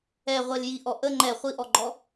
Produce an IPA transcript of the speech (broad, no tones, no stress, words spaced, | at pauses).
ɛʁʷel ji ʔɔʔə ŋ͡ǃɛ χʷiʔɔɡ͡ǃɔ